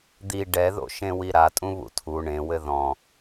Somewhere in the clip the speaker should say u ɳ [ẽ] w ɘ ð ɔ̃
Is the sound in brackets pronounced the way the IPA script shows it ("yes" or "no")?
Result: yes